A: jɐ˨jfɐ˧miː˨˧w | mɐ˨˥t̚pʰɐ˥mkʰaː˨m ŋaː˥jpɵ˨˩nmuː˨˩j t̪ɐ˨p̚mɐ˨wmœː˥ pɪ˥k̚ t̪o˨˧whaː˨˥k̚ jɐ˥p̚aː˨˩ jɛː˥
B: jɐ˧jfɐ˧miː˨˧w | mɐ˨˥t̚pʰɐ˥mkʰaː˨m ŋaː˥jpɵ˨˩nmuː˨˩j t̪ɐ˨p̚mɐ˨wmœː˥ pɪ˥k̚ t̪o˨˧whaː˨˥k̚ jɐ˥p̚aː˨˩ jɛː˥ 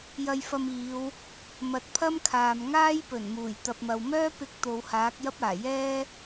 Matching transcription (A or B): B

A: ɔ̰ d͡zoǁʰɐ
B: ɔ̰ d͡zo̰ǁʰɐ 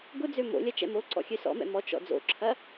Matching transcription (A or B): B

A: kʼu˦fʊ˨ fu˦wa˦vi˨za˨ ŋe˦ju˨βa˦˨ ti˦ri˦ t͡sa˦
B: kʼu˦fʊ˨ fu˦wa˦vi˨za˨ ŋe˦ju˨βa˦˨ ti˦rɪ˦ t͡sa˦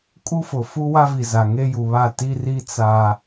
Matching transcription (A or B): A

